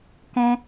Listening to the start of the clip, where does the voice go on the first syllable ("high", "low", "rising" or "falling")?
high